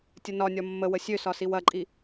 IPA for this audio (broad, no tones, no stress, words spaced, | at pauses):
tʲənɒnʲɒ mːəwə sʲøsɒsiw ɐǃʼi